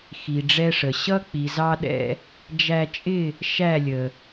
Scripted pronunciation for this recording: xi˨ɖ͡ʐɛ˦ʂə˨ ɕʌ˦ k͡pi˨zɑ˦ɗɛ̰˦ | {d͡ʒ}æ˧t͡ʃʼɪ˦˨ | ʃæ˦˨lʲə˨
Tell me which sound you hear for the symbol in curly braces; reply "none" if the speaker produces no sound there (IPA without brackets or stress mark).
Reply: d͡ʒ